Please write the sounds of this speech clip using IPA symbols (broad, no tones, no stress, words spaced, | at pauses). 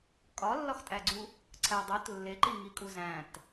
kʼɒlːɒxtʼæɡ͡ǀu | ǀʰædˤot lːeǃi ŋikʼuzæ̃t